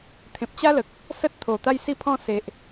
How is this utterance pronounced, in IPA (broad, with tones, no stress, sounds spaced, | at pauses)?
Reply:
t̪ʰ ẽ˨ p̚ t͡ɕ a˦ l ə˨ k̚ | s ə˦ t̚ t̪ʰ o˨˩ t̪ a˦ j s i˥˧ pʰ ɔ̃˥˧ s e˨ ʔ